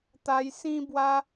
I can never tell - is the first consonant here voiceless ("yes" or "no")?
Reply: yes